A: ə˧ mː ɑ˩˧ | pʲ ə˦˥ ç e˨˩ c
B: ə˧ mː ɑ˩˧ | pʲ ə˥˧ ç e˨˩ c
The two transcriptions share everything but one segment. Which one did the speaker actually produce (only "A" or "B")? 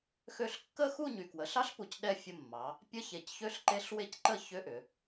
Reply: A